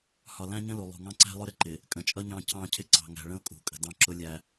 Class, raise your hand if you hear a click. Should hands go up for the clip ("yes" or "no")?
yes